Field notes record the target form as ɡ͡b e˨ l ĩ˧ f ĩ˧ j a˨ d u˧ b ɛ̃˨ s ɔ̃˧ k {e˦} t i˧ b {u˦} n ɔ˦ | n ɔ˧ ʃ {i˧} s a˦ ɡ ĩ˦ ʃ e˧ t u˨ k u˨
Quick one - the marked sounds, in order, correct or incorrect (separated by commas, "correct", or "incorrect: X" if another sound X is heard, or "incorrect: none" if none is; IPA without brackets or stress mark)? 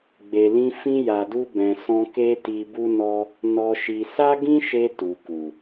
correct, correct, correct